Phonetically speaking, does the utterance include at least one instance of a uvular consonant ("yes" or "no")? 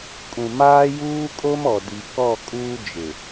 no